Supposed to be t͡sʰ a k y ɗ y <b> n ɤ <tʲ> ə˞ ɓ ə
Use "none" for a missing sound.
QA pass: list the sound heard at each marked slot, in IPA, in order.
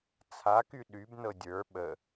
b, dʲ

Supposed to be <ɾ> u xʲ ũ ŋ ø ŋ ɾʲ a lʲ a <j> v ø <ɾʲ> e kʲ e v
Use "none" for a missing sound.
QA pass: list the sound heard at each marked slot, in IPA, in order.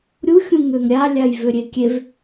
ɾʲ, j, ɾʲ

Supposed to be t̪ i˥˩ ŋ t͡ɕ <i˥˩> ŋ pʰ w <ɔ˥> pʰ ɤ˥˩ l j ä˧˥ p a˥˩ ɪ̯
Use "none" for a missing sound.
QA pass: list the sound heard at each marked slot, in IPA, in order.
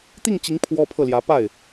i˧˥, ɔ˥

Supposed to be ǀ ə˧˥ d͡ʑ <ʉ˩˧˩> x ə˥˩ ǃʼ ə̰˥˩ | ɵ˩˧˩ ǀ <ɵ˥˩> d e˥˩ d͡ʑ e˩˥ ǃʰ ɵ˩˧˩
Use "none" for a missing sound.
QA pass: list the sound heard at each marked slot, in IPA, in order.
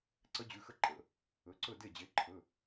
ʉ˩˧˩, ɵ˥˩

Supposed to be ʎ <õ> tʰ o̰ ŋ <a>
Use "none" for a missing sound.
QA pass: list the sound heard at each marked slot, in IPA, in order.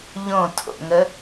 õ, ə

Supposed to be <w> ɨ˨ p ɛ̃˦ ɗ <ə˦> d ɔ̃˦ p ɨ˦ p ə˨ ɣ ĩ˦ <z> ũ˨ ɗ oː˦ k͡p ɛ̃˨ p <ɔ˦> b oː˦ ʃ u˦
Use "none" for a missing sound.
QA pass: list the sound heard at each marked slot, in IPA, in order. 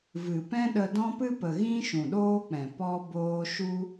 v, ə˧, ʃ, ɔ˦

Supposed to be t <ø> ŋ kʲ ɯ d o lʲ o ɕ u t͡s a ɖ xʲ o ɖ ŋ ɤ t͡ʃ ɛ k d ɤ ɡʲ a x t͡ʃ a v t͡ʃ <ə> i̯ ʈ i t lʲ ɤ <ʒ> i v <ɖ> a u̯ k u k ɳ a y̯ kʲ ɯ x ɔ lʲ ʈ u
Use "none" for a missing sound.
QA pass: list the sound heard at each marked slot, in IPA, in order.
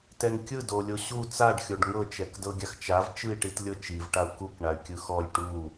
ɛ, ɯ, t͡ʃ, ʈ

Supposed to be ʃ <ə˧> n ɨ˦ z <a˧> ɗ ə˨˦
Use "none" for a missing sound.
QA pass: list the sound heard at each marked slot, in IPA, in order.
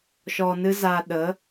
ɔ˧, a˧

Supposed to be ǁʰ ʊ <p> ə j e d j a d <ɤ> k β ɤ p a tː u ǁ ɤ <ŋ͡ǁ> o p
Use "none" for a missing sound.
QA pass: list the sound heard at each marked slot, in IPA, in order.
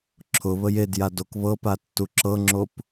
β, o, ŋ͡ǁ

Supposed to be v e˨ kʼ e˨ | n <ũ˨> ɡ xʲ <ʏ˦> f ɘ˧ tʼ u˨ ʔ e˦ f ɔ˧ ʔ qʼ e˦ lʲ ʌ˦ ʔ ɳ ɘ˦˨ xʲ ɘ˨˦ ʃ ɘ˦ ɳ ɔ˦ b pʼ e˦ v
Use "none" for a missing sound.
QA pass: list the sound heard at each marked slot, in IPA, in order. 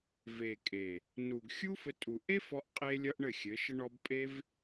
u˨, u˦

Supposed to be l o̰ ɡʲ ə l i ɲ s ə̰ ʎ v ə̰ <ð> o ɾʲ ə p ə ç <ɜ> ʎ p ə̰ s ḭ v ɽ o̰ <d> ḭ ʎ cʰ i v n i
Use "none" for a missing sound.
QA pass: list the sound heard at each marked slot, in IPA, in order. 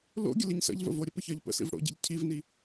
v, ɜ, ɟ

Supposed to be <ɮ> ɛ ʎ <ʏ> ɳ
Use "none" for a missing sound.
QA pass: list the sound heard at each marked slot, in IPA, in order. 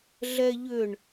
ɮ, ʏ

